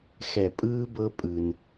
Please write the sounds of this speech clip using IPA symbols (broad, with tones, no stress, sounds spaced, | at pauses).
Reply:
x ɛ˨ pʼ ɯː˦ b ɤ˦ pʼ ɯ˦ n